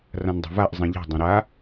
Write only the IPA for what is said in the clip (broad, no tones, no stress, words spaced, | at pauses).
rãndˤɛ̤vaʔ zˤĩʎɛ̤dˤõ ɾa